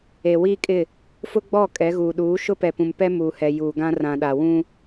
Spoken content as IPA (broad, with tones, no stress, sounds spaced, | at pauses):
e˨ w iː˦ kʼ ɪ˦˨ | f ʊ˦ ɡ͡b ɔ˦˨ kʼ ɛ˨˦ ɣ uː˨ ɗ uː˨˦ ʃ ʊ˦ p ɛ˨ p ũ˨ m p ɛ˦ m uː˨ h ɛ˨ j uː˨ ɡ ã˦ r ã˨ ɗ a˨ w ũ˦